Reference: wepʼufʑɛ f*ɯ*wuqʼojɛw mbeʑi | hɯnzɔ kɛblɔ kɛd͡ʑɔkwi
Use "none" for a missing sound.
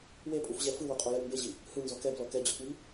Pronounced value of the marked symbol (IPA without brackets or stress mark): ɯ